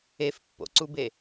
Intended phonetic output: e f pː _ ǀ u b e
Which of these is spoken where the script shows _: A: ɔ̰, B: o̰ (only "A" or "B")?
B